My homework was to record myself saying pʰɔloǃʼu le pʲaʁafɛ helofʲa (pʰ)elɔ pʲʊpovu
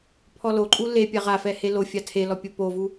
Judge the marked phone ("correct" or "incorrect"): incorrect